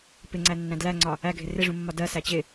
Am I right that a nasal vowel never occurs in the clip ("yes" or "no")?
no